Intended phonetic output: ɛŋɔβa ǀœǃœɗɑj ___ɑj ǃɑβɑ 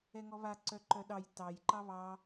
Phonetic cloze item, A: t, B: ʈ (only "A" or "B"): A